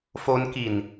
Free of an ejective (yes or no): yes